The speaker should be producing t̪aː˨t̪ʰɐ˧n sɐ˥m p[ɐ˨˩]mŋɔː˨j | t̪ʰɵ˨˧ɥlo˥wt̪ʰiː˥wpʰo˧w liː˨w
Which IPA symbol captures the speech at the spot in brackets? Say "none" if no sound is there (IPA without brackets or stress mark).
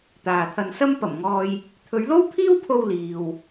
ɐ˨˩